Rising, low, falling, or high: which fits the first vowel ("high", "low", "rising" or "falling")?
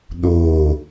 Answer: falling